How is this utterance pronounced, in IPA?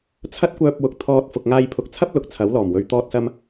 t͡sʰ ɐ˥ t̚ kʷ œː˧ p̚ w ʊ˨ k̚ t̪ʰ ɔː˧ t̚ f ʊ˨ k̚ ŋ aː˧ j pʰ ʊ˨ k̚ t͡sʰ ɐ˥ p̚ l ʊ˨˥ k̚ t͡sʰ ɐ˨˥ w l ɔː˨˩ m w ɵ˨ ɥ t̪ ɔː˥ t̚ s ɐ˥ m

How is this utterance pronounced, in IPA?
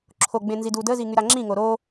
ǁʰ o ɡ͡b ẽ n z i d uː d ə z i ŋ y ɾ a ŋ͡ǁ ĩ ŋ o ɾ o

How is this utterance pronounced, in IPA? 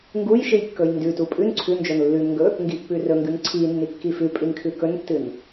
ŋ ɡ u j ʃ ɨ j kː ɵ j n d ʉ t u pʼ ʉ n ǀʰ ʉ n d͡ʒ o n lː ʉ n ŋ ɡ ɵ | ŋ ɡ i pː ʉ r ɵ ŋ ɡ ʉ n ǀʰ i nː i kː i f ʉ pʼ i n kʰ ʉ k ɵ n tː ɨ n

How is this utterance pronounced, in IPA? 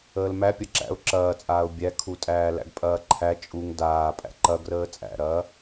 əː l m æ pʲ ɐ ǁ æ̰ ʊ̯ ǁ ɐː t͡sʼ aː ʊ̯ bʲ æ kʰ u tʼ æː l æ̰ ɡ pʼ ɐː ǃʰ æ t͡ʃʼ u ŋ d aː pʼ æ̰ ǃ ɐ ɡ r əː t͡sʼ æ̰ ɾ ɐː

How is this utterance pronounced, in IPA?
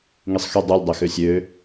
ŋ i sˤ x y dˤ u lʲ dˤ ø x ø sʲ ø

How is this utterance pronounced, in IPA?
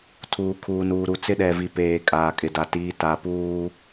tʰ uː˨ kʰ uː˨ n uː˨ ɾ u˨ t͡s ɪ˦ ɗ ɛ˨ v i˨ p eː˨ kʼ aː˨ kʼ ɪ˨ d a˨ t iː˨ t a˨ p uː˦

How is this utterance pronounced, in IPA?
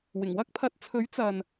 w ɪ˨˩ ŋ w ɐ˥ k̚ pʰ ɐ˨˥ t̚ t͡sʰ ɵ˨˥ ɥ t͡s ɐ˨ n

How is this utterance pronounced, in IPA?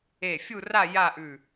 e˧˩ fʲ u˥˧ r a˥˧ j a˥˧ ʔ ʉ˧˩

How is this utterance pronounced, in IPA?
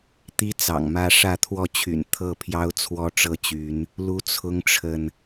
t̪ i˦ t͡s ɑ̰˨˩ ŋ m ä˦ ʂ ä˥˨ t̪ʰ w ɔ˥˨ t͡ɕʰ y̰˨˩ n t̪ʰ ɤ˥˨ pʰ j ɑ˦ ʊ̯ t͡sʰ w ɔ˦ ʈ͡ʂ ɤ˦ t͡ɕ y˨˦ n | l u˦ t͡sʰ ʊ˦ ŋ ʈ͡ʂʰ ə˨ n

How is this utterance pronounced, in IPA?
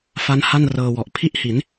f a˦˥ n h a˥˩ n r ɤː˧ w ɔ˨˩ ʔ pʰ i˥˩ ʔ h i˩˦ n

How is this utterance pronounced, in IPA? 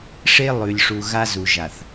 ʂ e˦ lˠ ʉ˨ lʲ ʂ u˨ ɣ a˦ z u˨ ʒ a˨ θ

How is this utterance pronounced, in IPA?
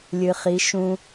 lʲ ɨ˧ χ i˧˥ ʃ ũ˥

